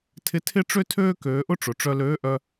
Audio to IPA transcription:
tʰɪ˧˥tʰɪ˥ʈ͡ʂø˥tʰøː˥ køː˩˧ʔʊ˥ ʈ͡ʂʊ˩ʈ͡ʂœ˧løː˧˥ʔœ˧

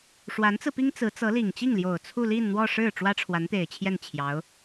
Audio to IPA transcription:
ʂwa˧˥nt͡sɹ̩˧pi˥ŋ t͡sɹ̩˧˥t͡sɤ˧˥li˨˩ŋ t͡ɕi˥˩ŋljo˨˩ʊ̯ t͡sʰu˥˧ li˥˧nn̪wɔ˥˧ʂɻ̩˥˩ ʈ͡ʂwä˥ʈ͡ʂʰwa˧˥nt̪e˨˩ɪ̯t͡ɕʰjɛ˥˩n t͡ɕʰjɑ˧˥ʊ̯

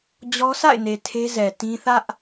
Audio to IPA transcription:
d͡ʑɔ˦ sa̰˦˨ɪ̯ne˨ tʰe˦zɛ˨ tĩ˦ θä˦ʔ

